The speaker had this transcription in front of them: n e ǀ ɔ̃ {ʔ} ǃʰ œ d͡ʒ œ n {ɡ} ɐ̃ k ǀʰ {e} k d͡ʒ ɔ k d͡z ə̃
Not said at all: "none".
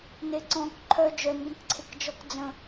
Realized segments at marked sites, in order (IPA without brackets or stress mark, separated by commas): k, ɡ, e